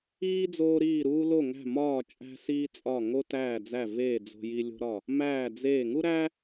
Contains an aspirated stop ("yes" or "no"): no